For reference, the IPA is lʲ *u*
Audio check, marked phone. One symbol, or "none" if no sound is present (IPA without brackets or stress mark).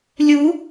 u